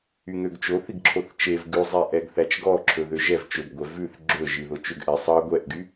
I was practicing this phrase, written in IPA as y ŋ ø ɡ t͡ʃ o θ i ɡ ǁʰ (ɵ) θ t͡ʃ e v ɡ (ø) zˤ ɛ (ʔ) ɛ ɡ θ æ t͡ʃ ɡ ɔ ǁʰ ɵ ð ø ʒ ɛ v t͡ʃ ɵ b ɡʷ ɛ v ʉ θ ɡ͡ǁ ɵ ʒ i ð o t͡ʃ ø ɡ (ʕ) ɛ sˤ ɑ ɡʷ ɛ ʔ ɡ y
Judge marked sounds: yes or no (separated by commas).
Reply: no, no, yes, no